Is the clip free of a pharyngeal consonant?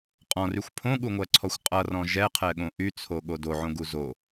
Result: no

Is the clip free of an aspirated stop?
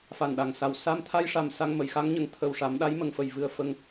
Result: no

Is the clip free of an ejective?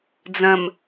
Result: yes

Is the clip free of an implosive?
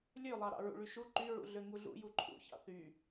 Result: yes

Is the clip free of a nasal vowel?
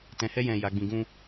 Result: no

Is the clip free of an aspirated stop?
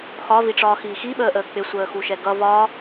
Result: yes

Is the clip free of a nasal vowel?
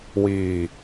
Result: yes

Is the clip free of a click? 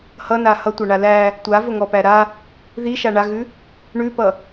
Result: yes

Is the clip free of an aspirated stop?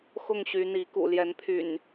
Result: no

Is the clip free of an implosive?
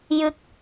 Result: yes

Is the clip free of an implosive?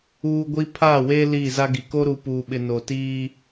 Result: no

